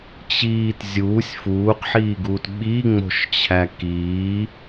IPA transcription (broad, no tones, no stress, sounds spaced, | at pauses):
t͡ɕ iː t zʲ uː sʲ f uː q ħ iː ɡ uː t ɓ i ŋ͡m o̤ ʃ t͡ɕʰ æ k iː